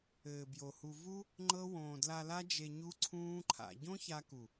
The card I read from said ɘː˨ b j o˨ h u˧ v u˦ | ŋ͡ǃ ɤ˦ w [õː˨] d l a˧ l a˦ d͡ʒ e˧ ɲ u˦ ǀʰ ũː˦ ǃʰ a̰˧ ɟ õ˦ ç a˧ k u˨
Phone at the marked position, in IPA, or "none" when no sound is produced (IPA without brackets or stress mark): õː˨